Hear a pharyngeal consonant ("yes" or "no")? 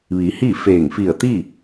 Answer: no